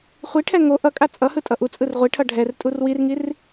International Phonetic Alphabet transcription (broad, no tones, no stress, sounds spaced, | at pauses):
χʷ i ʈʰ ɛ ŋ o ʔ ʌ kʼ a t͡sʼ ʌ h ɯ tʼ ʌ ʔ u t͡sʼ ɯ r ʁʷ i ʈʰ ʌ ɖʱ ɛ r tʼ u r w i r ŋ i r